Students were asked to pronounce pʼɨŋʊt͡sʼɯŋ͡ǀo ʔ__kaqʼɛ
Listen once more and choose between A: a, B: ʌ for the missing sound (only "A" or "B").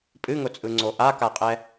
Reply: A